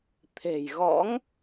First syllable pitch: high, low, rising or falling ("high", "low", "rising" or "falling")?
low